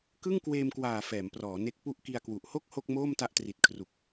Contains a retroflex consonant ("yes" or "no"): no